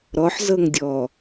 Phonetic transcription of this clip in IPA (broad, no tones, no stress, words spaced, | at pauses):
ɾɔħzɤŋdʲɔ